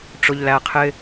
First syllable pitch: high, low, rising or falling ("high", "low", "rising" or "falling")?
low